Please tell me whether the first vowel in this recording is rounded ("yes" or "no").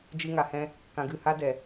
no